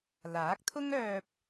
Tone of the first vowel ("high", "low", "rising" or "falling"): rising